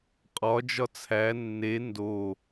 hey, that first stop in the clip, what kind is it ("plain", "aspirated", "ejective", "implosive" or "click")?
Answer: ejective